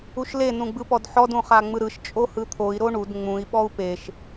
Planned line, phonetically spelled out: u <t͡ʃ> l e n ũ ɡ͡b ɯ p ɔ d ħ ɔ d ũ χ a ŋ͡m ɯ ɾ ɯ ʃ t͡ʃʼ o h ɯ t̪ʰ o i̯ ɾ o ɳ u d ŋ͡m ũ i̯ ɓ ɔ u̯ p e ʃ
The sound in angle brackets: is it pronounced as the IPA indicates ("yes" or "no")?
no